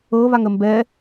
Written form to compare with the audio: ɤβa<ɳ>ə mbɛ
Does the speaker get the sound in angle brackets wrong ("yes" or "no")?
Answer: yes